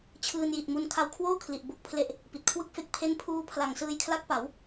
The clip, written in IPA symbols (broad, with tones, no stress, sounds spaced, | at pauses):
t͡ɕʰ ɯː˧ n j i˨˩ t̚ m u˧ n kʰ a˧ w kʰ w oː˥˩ kʰ l i˨˩ ʔ b o˥˩ k̚ pʰ l e˥˩ ʔ | p i˨˩ t̚ kʰ w ɯ˥˩ k̚ f e˦˥ k̚ pʰ e˥˩ n pʰ uː˦˥ pʰ l a˨˩ ŋ s ɯː˧ j kʰ l a˦˥ k̚ p a˩˦ w